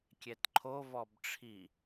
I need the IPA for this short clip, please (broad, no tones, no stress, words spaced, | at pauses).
kʲɛtǃʰo vɔbʈ͡ʂʰi